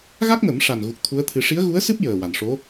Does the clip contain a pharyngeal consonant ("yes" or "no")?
no